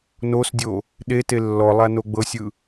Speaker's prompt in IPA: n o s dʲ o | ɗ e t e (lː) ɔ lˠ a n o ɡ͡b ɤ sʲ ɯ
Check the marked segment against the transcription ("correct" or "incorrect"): correct